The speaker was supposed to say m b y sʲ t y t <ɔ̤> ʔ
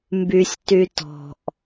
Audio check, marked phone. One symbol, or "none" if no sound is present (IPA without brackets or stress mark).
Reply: ɔ̤